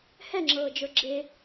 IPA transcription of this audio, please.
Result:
h ɛ ŋ͡ǁ ɤː d͡ʒ ə˞ ɡ͡ǁ e

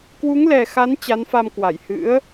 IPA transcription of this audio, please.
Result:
k w u˨˦ ŋ l ɛ˨˩ x a˨˦ n t͡ɕ a˨˦ n f a˧ m k w a˧˩ j h ɨ̰˧˥ ə̯

